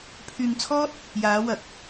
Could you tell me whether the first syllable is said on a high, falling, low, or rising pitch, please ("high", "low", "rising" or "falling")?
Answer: low